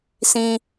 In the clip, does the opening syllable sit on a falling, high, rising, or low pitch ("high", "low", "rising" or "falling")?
high